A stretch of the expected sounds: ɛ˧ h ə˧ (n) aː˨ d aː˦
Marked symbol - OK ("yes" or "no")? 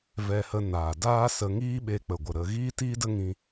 yes